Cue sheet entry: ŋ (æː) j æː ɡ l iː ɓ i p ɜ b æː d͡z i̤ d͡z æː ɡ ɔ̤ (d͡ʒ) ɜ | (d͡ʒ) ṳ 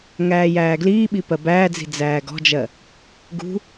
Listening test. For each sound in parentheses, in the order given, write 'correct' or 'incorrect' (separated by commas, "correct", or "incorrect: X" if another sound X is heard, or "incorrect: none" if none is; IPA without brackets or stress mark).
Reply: correct, correct, incorrect: ɡ